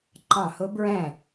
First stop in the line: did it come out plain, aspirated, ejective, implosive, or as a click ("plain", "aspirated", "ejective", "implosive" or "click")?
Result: click